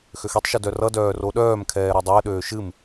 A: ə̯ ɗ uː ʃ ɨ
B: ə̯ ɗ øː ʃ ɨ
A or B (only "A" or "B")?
B